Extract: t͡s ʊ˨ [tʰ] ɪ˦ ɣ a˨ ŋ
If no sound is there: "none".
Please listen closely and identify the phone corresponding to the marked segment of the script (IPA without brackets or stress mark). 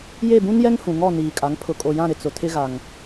tʰ